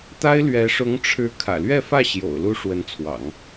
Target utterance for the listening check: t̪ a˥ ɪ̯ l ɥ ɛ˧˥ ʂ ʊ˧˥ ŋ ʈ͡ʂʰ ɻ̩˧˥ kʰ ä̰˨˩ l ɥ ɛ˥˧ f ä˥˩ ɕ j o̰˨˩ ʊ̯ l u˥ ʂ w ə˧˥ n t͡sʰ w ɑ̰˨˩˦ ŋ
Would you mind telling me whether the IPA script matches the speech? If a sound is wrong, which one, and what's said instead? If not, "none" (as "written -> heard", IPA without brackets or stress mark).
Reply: none